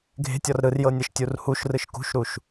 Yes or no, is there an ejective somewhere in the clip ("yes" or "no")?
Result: no